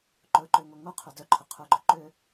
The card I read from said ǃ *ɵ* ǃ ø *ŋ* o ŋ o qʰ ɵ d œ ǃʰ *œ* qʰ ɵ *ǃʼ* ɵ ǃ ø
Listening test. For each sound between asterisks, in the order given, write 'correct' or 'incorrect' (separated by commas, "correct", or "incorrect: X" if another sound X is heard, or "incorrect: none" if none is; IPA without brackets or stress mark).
correct, correct, correct, incorrect: ɡ͡ǃ